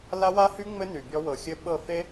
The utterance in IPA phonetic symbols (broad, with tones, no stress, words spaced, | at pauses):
la˦wa˦hy˦ ŋ͡mɘ˦ ny˨bʲɔ˦ wɤ˨xʲɘ˦ɓɤ˦˨fe˦